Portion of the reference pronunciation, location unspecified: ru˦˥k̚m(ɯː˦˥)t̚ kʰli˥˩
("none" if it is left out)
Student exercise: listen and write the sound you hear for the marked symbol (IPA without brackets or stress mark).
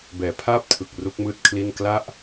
ɯː˦˥